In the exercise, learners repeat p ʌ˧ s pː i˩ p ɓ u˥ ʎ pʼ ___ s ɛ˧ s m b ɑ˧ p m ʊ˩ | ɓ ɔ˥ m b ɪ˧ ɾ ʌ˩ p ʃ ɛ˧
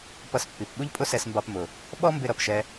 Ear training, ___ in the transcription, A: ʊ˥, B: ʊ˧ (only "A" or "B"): A